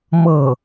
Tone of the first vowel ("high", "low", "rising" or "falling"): falling